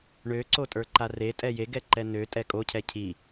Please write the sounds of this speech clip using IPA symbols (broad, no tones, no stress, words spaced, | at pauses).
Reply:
ɳøǀo tʼə˞ǃaretʼɛ jeɡɛ ǃɛnø tʼɛkʼocʰɛ cʰi